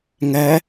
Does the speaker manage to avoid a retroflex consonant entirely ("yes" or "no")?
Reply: yes